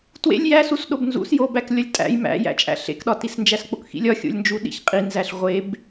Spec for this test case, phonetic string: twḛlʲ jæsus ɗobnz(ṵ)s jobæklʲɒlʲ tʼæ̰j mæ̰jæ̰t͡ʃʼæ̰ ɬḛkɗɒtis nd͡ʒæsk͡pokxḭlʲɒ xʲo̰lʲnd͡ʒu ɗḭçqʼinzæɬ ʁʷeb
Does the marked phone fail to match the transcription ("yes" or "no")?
no